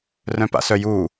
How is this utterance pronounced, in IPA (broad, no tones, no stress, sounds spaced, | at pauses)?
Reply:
r œ̃ p a̰ s œ j u